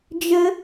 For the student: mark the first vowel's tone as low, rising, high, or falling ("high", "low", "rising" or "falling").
high